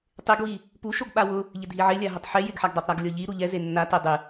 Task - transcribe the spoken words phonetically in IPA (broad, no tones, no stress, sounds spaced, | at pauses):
tˤ ɪ ɡ w i | p u ʃ o ɡ ɓ a w ʊ | ʎ ɪ dʱ i ʕ ɪ lʲ a ɦ ʊ tˤ ħ e j ɪ ɡ ħ a ɡ dˤ e tˤ ɾ a ɡ lʲ ɔ ʎ i ɾ u ʎ ɛ z e nː a t e dˤ ɪ